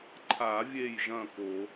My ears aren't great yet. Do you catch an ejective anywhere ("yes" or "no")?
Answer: no